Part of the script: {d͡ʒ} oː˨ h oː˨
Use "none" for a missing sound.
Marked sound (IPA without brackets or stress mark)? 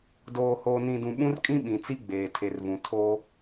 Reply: d